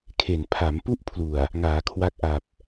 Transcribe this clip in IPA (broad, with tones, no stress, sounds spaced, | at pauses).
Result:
kʰ e˨˩ n pʰ a˩˦ m p u˥˩ ʔ pʰ l u˨˩ a̯ | ŋ aː˩˦ kʰ w a˦˥ k̚ ʔ a˨˩ p̚